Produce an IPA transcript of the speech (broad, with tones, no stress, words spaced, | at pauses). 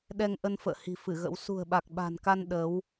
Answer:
ɗɛ˧ŋʔə˧n fə̰ː˧˨hi̤˨˩ fɨ˧˩ɣə̰˧˥w sṳ˨˩ə̯ɓa˨˩k̚ɓa̤˨˩nka˧n ɗə˨˦w